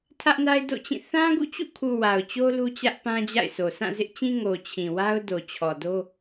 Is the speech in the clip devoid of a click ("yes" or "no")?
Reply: yes